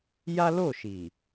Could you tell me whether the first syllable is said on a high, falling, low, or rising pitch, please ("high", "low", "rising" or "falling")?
high